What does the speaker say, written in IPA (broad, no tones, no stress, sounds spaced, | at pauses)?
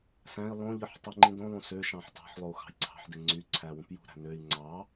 s æ̃ i̯ lˠ õ ʎ ɯ ħ tˤ i ŋ͡ǃ ĩ d õ lˠ ũ s ø ʃ ɑ̃ ħ t ɑ̤ ħ lˠ o u̯ x ɑ̤ j ǀʰ ɑ̤ ħ d e ŋ͡ǀ y ǀʰ æ w ũ p j ṳ ɾ æ̤ n ø i̯ ŋ͡ǀ ɑ